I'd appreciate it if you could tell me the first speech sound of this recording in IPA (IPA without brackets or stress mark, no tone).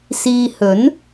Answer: s